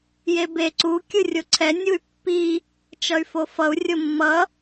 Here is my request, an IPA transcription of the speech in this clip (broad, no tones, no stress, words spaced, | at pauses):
jebe ǀu kʲɯrʲoǀʰɛ nʲuy̯pːi | t͡ʃʌy̯fofʌu̯ rʲomːʌ